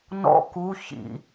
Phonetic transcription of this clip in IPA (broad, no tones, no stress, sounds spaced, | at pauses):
n ɔ̰ k u ç ḭ